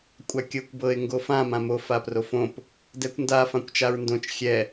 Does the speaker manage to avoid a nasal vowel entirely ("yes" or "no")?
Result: no